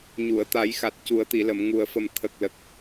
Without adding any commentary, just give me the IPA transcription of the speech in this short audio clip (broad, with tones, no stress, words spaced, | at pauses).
ɲu˨˩˨ə̯t̪a˨˩˦jxa˨˩t̚ cu˨˩˦ə̯t̪i˨˩˨lə˨˩˨m ŋu˨˩ə̯fə˨˩m t̪ʰə˨˩k̚lə˨˩k̚